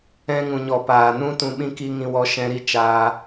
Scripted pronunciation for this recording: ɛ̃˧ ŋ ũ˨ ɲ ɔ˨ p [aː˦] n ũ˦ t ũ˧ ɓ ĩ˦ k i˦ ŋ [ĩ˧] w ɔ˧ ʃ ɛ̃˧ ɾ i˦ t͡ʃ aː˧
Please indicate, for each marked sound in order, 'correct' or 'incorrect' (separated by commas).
incorrect, correct